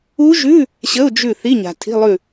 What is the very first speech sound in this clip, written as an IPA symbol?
u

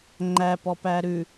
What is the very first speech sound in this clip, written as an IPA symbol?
ŋ͡ǃ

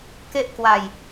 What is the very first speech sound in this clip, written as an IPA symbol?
k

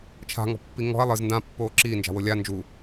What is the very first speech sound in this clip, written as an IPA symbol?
t͡ʃʰ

